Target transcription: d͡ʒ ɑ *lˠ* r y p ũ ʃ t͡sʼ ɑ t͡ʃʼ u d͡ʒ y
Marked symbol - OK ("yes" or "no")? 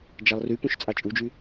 yes